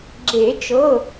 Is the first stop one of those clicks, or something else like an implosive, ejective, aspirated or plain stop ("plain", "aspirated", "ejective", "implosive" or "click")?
click